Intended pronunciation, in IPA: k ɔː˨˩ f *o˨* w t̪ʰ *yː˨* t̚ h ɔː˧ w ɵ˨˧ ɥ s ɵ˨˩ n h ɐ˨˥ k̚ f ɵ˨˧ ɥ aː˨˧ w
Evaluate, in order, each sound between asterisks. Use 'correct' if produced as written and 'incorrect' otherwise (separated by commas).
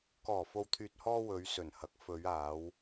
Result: correct, correct